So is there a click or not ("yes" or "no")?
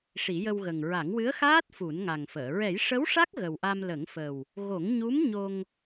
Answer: no